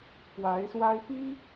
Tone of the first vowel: rising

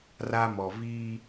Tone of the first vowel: high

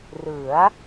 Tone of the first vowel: rising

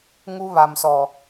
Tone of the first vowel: high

